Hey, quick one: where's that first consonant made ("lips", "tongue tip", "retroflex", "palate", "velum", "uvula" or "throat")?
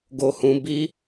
velum